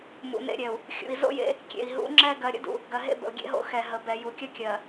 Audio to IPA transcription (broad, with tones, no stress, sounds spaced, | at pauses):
m ṵ˨ n ḛ˦ ɾʲ ɛ˨ u̯ | xʲ ṵ˨ i̯ z o̰˦ j ḛ˦ | kʲ ḛ˨ i̯ ɦ ṵ˨˦ ŋ͡ǁ ɛ˦ ɡ ɜ˨ ɾʲ ə̰˦ d ṵ˨ | ɡ ɜ˨ ɦ ḛ˦ b ə̰˨ u̯ ɡʲ ḛ˦ ɦ o̰˦ x ɛ˨ ɦ ə˨ b ɛ˨ j u˨ kʲ ə˦ kʲ ɜ˨